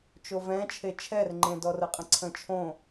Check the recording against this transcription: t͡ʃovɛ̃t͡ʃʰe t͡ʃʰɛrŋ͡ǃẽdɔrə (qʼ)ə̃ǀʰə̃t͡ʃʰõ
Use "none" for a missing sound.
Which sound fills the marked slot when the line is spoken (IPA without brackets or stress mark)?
qʼ